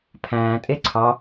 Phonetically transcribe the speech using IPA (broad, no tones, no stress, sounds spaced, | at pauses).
pʰ æ̃ː tʼ e ǀʰ ɑ